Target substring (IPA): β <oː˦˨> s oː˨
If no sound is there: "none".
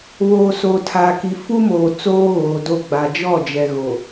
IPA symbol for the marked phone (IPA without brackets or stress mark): oː˨